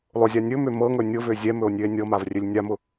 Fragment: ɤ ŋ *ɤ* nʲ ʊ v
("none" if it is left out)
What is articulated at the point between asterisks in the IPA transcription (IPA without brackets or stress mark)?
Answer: ɵ